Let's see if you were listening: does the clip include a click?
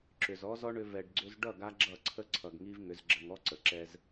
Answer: yes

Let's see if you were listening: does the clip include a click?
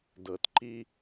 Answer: yes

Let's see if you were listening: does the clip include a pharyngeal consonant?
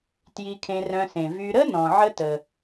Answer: yes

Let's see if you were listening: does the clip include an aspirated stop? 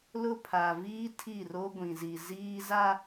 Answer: yes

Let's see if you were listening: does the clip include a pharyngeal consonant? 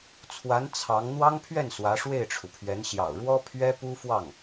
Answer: no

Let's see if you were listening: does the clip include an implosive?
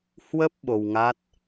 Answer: yes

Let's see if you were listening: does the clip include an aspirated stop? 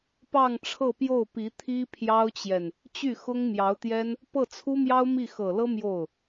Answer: yes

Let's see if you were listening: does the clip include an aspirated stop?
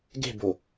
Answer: no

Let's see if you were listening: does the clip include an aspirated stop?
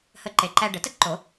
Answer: no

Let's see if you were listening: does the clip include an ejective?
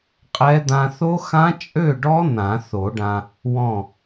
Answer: yes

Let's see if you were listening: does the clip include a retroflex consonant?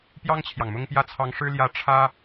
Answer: yes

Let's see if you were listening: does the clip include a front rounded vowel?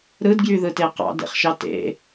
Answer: yes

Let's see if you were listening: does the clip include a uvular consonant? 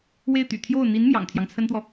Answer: no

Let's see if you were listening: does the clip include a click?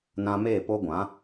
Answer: no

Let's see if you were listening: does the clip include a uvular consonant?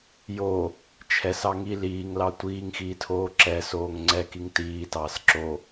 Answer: no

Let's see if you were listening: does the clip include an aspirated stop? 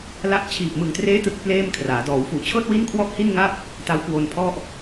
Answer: yes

